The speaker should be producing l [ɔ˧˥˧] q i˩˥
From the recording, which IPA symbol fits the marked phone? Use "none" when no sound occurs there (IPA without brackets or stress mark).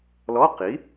ɔ˧˥˧